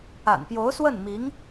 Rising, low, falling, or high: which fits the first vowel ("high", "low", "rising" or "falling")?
low